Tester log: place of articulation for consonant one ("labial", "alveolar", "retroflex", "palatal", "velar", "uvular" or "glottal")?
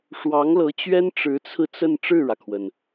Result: retroflex